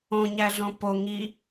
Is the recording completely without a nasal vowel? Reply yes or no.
no